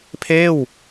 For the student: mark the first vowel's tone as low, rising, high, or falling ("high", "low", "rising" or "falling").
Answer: falling